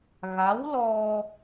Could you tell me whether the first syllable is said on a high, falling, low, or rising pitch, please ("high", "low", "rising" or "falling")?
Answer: rising